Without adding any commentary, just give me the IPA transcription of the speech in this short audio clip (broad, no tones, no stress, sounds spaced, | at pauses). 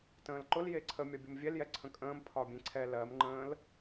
t ə̃ː l ǃ ʊ l j e ǀʰ ə mʲ ɒ bʲ ʊ m vʲ ɛ l j ɛ ǀʰ ə̃ kʼ ə̃ː m pʰ ɒ bʲ ẽ ǀʰ ɛ l ɜ m ŋ͡ǃ ə̃ː l